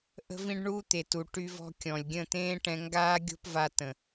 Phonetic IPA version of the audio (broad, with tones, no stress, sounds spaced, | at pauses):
ʔ ə̤˧ v ĩ˧ ɖ ɳ uː˦ t̪ e˨ t u˨ ʈ y˧ v ɔ̤˧ kʲ ɔ̃˨ lʲ ɡʲ ə̃˦˨ t̪ ẽː˦ ʈ ɛ̃˧ ŋ ɡ aː˦ ɡʲ o̤˦ p v a˧ t ə̃˨